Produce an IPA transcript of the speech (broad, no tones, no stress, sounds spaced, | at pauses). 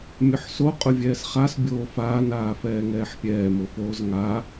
mʲ ʊ ħ s o qʼ ʊ vʲ ɛː s χ a s bʲ oː f aː n aː f ɛː ŋ ɛː ħ pʲ ɛː m ʊ f oː z ŋ a